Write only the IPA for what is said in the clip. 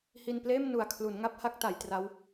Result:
h i˧ n p l eː˥˩ m n u˨˩ a̯ kʰ l u˩˦ n ŋ a˥˩ p̚ h a˦˥ k̚ t a˩˦ j t r a˦˥ w

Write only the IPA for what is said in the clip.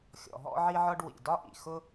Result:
xʲ ɔ̰˩ ɦ ɔ̰˥ ʕ i˥ ʕ ɒ˥ ɖ w ḭ˩ d ɒ˥ ʔ ḭ˩ x ʊ˥

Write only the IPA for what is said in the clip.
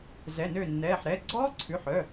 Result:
z ɛ˩˧˩ n ø˧˩ nː ɛː˩˧˩ ħ ɾ ɛ˩˧˩ ɡ͡ǀ ɔː˦˥ ǀʰ ʉ˩˧˩ ħ œ˩˧˩

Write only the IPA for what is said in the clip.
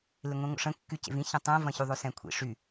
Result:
l ɪ ŋʷ ĩ ŋʷ ə̰ ʂ ə̃ kː y c ḛ v ĩ ç ə̃ tˤ ɛ̃ v ɐ̃ ç y ðˤ ø s ɛ̃ kʷʰ ḭ ʂ y

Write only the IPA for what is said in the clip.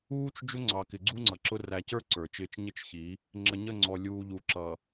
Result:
uː˦ t͡ʃ d͡ʒ ʊ˦ ŋ͡ǀ ɑ˨ k ɪ˨ ɡ͡ǀ u˦ ŋ͡ǀ ʌ˨ ǁ ʊ˦ r æ˨ c ə˞˦ ǀ ə˞˨ t͡ʃ ɪː˦ t͡ʃ ɲ ɪ˦ t͡ʃ ç i˨˦ | ŋ͡ǁ ə˨ ɲ ə˦˨ ŋ͡ǀ ɔ˨ lʲ uː˨ ʎ u˨ ǁ ʌ˨

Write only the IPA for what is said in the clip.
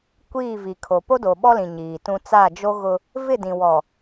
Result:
kʷ iː˦˨ v i˨ kʰ o˨ p o˦ d o˨ ɓ ɔ˦ l ĩ˨ ɲ iː˨ t ũ˦ t͡s a˦˨ d͡ʒ o˦ ɣ ʊ˦ | v ɪ˦˨ d ĩ˨ w ɔ˨

